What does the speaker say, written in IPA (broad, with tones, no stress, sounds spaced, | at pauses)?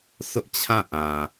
sʰ ʊ˦ ʔ t͡ɕʰ ã˦˨ ʔ ã˨